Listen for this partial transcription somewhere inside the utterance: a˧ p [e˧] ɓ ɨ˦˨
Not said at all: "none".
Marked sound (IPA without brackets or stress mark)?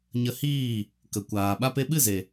e˧